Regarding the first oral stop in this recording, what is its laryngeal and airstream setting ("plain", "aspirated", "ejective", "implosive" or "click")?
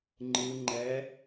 click